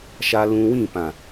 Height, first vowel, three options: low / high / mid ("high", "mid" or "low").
low